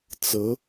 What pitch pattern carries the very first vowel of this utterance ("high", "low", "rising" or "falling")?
rising